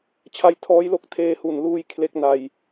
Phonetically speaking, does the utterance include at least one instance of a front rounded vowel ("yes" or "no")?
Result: no